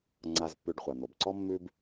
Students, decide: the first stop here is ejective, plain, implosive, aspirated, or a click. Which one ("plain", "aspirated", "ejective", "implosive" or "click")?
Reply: click